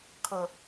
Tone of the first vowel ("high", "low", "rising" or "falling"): low